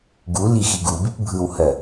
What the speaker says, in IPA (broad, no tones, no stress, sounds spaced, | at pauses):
ɡ u l i x i ɡ u b i p bʱ ɯ w h ɜ